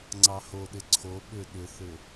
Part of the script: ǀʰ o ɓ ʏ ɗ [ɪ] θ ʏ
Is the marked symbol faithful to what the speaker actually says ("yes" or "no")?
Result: no